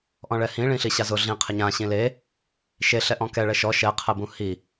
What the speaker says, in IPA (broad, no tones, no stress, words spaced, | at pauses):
ʔɔ̃ɭɛhĩ ɭĩɬiɕazʊ ɮĩ qʰɪɲã ɕĩle | ʃe ɬɛʔɔ̃kɛ ɭɛʃɔ ʃɛ qʰɛbũhi